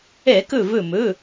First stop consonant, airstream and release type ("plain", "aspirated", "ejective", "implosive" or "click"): plain